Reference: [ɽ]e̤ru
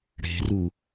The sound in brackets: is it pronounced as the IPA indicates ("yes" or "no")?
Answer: yes